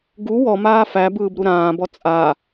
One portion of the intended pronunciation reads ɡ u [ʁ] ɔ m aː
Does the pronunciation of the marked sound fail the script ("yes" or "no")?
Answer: yes